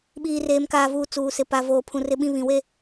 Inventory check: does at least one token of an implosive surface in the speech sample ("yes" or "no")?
yes